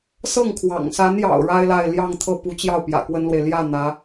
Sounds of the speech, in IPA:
sɤ˥˩ŋkʰwɑ̰˨˩ŋsa˧˥njɑ̰˨˩ʊ̯ ɻa˥ɪ̯la˥˧ɪ̯ ljɑ˥˧ŋt̪ʰɤ˥˩ pu˧˥t͡ɕjɑ˥˩ʊ̯ pjä̰˨˩kwə˥nlwe˨ɪ̯ ljä˥˩ n̪ä˧˥

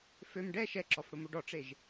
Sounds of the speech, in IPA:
føm ɖɛ ʃɛǁɔfɽʊmoɖ ɔʈ͡ʂeʒ

